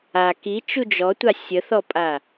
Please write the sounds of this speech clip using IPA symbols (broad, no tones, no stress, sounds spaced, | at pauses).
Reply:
a k i t͡ʃ u d͡ʒ ɔ tʷ a sʲ ə θ ɔ pʼ a